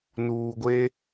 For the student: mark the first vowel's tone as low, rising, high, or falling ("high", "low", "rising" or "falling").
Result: low